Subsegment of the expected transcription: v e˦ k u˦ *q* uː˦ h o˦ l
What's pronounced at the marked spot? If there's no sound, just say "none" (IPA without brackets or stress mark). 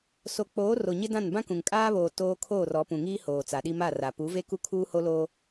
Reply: kʰ